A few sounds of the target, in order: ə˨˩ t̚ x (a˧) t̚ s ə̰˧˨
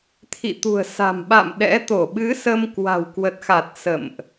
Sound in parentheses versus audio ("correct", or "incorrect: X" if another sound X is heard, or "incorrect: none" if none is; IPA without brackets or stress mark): incorrect: a˨˩